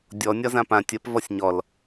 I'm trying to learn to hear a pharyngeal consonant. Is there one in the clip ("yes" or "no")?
no